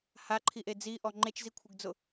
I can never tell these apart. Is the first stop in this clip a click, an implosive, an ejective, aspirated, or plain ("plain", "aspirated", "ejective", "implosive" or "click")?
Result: click